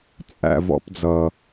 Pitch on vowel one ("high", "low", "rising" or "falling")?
low